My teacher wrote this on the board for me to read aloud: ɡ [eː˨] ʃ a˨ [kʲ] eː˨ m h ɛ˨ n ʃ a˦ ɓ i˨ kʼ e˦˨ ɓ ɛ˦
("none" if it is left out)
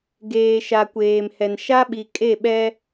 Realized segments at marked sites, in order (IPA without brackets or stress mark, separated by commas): eː˨, kʷ